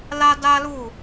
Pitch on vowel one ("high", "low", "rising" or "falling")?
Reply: high